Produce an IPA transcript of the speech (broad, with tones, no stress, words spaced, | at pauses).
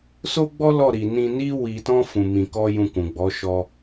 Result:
so˦ɡ͡bɔ˦ lɔ˦˨ɾi˨ nĩ˧ni˦ wi˧tɔ̃˦ fũ˧mĩ˧kɔ˦ jũ˧kũ˨ɡ͡bɔ˨˦ ʃɔ˧